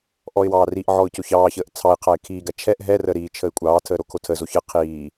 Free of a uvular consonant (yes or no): no